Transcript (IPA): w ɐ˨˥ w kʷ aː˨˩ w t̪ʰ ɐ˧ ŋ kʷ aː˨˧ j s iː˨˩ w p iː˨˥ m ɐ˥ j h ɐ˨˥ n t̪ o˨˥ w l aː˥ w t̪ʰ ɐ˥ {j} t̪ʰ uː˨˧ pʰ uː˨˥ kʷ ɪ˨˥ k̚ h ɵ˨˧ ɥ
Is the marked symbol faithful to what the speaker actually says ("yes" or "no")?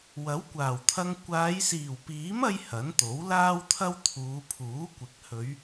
no